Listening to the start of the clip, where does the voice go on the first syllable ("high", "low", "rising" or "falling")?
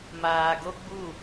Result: low